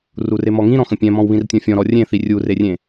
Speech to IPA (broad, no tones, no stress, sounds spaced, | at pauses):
r u r e m ɔ ŋ ĩ ɾ ɔ̃ x ə̃ pʲ ɛ̃ m ɔ̃ w β ĩ r tʲ ɔ̃ fʲ ɔ̃ ɾ ɔ rʲ ẽ θ i rʲ u r e rʲ ẽ